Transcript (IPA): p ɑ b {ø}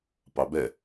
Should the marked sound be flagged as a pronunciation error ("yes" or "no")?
yes